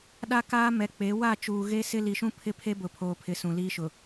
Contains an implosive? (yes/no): yes